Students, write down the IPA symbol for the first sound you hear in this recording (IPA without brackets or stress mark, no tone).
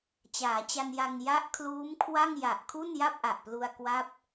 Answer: t͡ɕ